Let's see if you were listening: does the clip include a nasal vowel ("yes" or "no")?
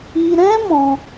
yes